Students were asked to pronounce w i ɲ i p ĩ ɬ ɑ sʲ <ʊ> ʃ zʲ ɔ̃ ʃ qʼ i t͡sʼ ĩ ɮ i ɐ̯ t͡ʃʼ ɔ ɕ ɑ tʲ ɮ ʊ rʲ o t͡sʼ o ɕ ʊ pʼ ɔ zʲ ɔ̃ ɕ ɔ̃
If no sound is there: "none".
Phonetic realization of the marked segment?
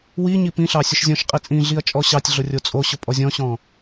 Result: ʊ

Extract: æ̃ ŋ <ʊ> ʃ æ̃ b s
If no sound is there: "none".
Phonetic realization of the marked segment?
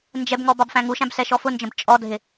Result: u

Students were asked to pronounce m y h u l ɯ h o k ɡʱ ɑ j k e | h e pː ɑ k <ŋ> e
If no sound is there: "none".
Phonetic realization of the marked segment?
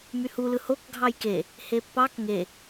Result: ŋ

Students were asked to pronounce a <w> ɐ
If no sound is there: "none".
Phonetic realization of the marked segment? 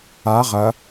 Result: ʁ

